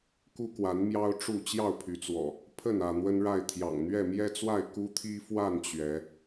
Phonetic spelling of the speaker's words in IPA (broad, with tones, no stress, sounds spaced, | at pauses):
k u˦ k w a˨˦ n m j ɑ˦ ʊ̯ ʈ͡ʂ u˥˨ t͡ɕ j ɑ˥˨ ʊ̯ pʰ y˨˦ t͡s w ɔ̰˨˩ | pʰ ə˥˨ n ä˥˨ n̪ w ə˦ n ɻ a˥˨ ɪ̯ t̪ʰ j ɑ̰˨˩ ŋ n̪ ɥ ɛ˥˨ m j ɛ˦ t͡s w a˥˨ ɪ̯ k u˦ t̪ʰ i˦ f w a˥˨ n t͡ɕ ɥ ɛ˨˦